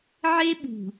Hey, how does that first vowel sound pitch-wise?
high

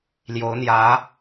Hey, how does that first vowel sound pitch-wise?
rising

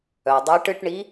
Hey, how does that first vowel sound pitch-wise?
low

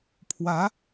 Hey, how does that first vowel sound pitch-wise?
rising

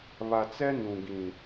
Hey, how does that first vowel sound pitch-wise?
low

